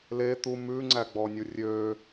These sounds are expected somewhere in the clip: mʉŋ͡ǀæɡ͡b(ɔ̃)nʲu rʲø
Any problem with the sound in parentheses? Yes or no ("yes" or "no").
yes